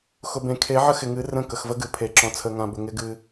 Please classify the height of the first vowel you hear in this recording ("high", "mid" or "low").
high